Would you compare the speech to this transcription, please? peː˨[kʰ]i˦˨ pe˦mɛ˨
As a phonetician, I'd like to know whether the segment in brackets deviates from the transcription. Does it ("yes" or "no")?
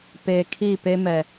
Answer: no